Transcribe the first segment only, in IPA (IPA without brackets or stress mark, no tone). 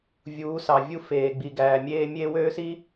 vʲ